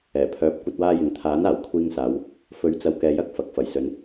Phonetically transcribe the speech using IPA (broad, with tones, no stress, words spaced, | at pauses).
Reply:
ɛː˨˩pʰœː˨˥p̚ kʷɐ˧t̚waː˧jɪ˨ŋ t̪ʰaː˨˥naː˨˩w kʷʰiː˧ŋsaː˨˧w | fɵ˨˥ɥt͡sɐ˨wkɛː˨jɐ˧k̚ fɐ˨k̚ fɐ˨˩jsɵ˨˧n